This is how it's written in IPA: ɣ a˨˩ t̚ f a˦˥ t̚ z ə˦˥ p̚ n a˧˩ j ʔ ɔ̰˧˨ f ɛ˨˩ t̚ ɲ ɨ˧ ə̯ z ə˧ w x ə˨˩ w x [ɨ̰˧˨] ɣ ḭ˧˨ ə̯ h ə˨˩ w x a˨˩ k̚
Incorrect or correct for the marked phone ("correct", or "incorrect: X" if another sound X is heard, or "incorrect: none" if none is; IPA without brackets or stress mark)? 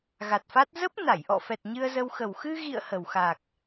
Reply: incorrect: ɨ˧